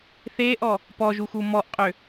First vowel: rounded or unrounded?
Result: unrounded